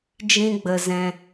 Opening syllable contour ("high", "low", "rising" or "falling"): high